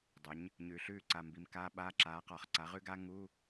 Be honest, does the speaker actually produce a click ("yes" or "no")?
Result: yes